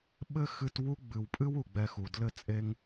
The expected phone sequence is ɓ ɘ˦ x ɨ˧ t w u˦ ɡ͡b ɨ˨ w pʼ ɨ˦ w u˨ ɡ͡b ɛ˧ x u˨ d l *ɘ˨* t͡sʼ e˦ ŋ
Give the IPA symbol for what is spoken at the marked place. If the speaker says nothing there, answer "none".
ɘ˦˨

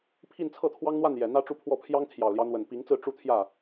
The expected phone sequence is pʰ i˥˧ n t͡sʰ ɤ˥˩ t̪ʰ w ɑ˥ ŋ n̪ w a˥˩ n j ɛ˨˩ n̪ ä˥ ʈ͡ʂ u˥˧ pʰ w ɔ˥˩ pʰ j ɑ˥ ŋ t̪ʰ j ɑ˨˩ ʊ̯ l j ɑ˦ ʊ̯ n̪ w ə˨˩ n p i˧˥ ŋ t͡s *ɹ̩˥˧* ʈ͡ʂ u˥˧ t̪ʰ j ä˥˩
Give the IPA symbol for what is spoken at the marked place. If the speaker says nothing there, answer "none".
ɹ̩˥˧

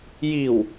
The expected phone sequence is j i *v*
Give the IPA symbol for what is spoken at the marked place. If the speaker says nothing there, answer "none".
w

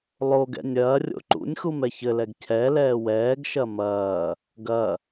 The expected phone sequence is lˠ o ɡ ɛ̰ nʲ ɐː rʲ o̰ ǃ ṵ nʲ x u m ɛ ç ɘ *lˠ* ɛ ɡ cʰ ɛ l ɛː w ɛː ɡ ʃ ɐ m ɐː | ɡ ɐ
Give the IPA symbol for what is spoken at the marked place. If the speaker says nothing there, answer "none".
l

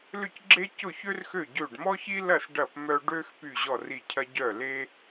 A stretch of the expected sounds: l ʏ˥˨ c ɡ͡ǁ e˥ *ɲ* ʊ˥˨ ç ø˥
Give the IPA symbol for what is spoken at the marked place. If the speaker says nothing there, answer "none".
c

